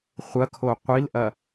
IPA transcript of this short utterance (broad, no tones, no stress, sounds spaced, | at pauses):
χʷ ɐ kʰ o qʷ i l ʔ ɐ